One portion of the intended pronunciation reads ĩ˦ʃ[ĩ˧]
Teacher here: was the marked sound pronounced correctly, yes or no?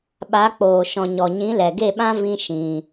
yes